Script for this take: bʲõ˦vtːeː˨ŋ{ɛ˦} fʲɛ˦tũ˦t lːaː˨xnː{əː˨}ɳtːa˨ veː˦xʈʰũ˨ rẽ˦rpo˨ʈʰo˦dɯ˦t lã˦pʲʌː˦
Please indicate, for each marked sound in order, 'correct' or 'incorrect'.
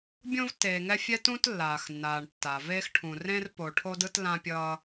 correct, incorrect: aː˨

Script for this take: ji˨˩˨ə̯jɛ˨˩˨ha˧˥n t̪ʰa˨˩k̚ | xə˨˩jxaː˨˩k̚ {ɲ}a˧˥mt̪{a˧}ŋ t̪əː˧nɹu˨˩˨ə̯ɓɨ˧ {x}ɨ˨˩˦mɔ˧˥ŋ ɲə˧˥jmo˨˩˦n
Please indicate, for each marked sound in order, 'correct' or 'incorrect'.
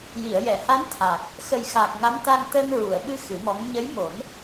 incorrect: ŋ, correct, correct

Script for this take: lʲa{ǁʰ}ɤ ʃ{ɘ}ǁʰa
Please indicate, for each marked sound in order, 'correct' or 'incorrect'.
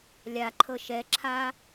incorrect: ǃʰ, incorrect: ɛ

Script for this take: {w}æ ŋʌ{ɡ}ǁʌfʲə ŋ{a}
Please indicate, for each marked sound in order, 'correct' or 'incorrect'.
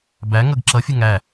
incorrect: b, correct, incorrect: æ

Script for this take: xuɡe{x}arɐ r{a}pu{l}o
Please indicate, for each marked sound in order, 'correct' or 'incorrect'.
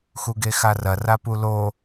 correct, correct, correct

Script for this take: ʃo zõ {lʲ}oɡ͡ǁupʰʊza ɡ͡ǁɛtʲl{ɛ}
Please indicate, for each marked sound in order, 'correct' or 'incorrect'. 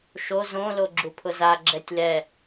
incorrect: l, correct

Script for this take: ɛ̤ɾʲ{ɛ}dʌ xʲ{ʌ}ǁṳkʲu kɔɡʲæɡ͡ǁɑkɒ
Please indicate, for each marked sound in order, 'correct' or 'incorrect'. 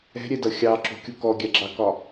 correct, incorrect: ɑ

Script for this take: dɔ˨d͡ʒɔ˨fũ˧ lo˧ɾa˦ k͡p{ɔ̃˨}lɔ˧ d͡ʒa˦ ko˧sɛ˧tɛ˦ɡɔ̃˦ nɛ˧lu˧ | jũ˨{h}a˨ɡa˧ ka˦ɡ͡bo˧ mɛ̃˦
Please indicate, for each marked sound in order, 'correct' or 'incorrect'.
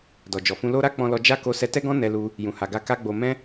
incorrect: ɔ̃˧, correct

